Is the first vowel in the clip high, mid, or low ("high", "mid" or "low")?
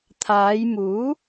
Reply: low